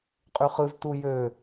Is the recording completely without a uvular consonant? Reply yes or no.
no